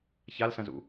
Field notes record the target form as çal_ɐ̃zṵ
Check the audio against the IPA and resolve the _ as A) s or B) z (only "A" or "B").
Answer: A